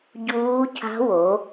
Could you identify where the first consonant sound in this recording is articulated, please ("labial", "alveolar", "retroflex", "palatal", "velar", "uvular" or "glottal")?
palatal